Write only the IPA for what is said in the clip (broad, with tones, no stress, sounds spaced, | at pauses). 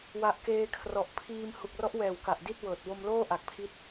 w a˨˩ ʔ k eː˧ kʰ r ɔ˨˩ ʔ pʰ iː˧ m h u˨˩ k̚ r ɔ˦˥ ʔ w ɛː˨˩ w k a˨˩ ʔ d i˥˩ t̚ w ɤː˨˩ t̚ w o˧ m l oː˥˩ ʔ a˨˩ k̚ pʰ i˦˥ t̚